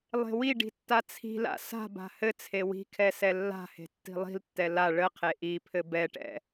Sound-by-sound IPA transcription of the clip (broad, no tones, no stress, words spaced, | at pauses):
lˠe̤wiɖi̤ tːat͡sʰi̤la̰ sa̤ba̤ hɘt͡sʰe wi̤kʰɛ sɛlːa̤he̤ tːi̤lˠi̤ltːɛ la ɭəqʰe ʔipʰɘ bɛʈɛ̰